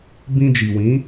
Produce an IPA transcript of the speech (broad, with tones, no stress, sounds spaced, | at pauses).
b ĩ˧ d͡ʒ i˨ w ĩ˨˦